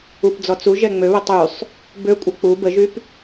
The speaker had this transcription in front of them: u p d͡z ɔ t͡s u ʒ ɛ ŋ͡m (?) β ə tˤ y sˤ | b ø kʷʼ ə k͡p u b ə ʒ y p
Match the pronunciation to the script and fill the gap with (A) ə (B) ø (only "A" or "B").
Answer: B